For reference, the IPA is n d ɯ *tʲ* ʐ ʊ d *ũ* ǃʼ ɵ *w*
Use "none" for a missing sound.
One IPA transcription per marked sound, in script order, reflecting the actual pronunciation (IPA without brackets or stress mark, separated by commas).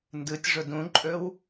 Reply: tʲ, ũ, w